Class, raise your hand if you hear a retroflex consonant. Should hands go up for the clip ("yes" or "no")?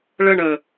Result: yes